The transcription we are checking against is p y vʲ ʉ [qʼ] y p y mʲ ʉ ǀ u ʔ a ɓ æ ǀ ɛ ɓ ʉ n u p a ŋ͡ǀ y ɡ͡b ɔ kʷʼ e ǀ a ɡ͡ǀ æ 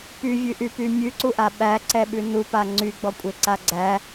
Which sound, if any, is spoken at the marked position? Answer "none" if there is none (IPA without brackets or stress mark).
ʔ